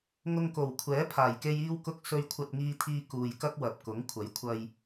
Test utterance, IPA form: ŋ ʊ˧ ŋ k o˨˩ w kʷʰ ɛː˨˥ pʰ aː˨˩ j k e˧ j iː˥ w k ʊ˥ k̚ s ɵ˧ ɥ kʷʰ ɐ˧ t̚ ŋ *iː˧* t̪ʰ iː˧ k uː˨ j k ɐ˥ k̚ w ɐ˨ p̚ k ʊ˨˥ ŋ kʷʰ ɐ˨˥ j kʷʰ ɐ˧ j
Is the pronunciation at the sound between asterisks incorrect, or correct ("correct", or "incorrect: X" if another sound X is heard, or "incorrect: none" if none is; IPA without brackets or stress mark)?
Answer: correct